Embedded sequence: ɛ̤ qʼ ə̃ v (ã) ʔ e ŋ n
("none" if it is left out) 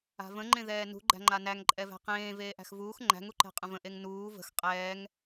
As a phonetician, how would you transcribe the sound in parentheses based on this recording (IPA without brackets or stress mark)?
ə̃